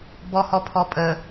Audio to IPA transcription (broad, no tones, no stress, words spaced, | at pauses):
bɔhɔpʰɔpʼə